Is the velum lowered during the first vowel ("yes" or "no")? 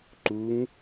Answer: no